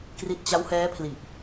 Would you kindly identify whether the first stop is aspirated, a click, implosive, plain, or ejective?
plain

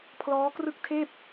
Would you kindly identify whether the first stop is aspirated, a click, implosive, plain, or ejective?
aspirated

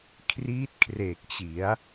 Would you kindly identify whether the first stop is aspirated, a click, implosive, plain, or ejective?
aspirated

